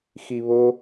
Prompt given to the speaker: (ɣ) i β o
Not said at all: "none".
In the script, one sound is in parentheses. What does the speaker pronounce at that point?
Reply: x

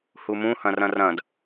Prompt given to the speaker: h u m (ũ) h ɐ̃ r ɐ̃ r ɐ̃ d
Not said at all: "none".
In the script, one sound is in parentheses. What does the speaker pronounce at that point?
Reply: ũ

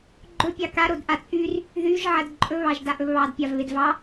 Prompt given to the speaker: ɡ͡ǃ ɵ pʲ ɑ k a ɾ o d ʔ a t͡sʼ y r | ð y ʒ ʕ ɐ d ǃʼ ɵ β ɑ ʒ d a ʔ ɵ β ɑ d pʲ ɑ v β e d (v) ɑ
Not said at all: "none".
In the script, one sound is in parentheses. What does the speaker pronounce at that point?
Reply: v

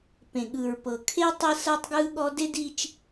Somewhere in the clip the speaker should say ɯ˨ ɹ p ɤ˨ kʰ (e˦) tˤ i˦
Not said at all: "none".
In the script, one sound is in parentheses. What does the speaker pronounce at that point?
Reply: e˦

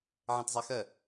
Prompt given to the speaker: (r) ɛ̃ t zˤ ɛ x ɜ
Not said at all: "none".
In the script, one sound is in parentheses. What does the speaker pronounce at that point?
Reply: ʕ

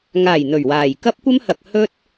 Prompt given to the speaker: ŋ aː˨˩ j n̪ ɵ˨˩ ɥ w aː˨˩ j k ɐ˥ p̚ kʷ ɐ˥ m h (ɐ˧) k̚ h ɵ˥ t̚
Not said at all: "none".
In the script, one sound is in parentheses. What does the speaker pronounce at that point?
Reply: ɐ˨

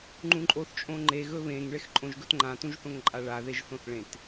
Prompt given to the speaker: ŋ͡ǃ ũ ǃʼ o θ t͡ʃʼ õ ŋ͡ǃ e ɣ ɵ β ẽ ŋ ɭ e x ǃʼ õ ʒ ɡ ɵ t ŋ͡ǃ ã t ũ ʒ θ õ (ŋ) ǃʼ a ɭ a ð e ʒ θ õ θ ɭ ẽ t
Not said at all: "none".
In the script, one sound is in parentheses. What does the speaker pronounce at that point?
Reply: ŋ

